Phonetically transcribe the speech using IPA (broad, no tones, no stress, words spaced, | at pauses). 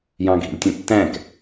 jɑ̃ɡʱḭlʲtʲə̃tːæ̃k